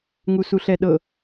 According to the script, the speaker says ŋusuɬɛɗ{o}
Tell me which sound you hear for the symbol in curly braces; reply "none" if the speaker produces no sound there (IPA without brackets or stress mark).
ɤ